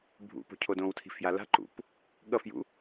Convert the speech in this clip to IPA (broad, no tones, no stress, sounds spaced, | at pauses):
bʱ ṵ p o̤ cʰ o d õ w tʰ i̤ f j a l a̤ ǃ ṵ p | ɠ ʌ f j ṵ